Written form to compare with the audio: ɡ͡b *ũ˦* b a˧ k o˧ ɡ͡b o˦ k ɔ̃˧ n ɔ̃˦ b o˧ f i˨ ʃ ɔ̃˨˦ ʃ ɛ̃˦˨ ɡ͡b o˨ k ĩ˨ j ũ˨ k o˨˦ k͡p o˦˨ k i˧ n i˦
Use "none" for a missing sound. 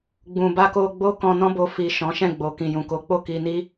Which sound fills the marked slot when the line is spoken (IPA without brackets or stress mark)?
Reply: ũ˨